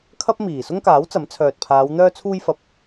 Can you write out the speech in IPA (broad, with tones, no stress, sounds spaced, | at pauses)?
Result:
kʰ ɐ˥ p̚ m iː˨˩ s ʊ˥ ŋ k aː˨˥ w t͡s ɐ˨˥ m t͡sʰ œː˨ t̚ pʰ aː˨˧ w n̪ œː˧ t͡sʰ uː˧ j f ɐ˨˥ p̚